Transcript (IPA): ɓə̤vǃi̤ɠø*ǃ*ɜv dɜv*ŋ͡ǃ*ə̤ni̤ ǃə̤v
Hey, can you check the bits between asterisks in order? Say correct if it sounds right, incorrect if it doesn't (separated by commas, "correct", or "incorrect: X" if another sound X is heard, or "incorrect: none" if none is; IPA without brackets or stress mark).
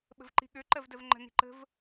correct, correct